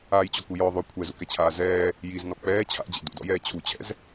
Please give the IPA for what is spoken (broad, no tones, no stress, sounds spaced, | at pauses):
aː j t͡ɕ ɔ k u j ɔ ðˤ ø kʷʰ ɛ z ṵ k ɛ t͡ɕʰ aː z ɛː | j i z n ɔ k͡p ɛː t͡ɕʰ a̰ d͡ʑ ɛ̰ d ṵ d ɔ̰ j ɛː t͡ɕʰ u t͡ɕʰ ɛ̰ z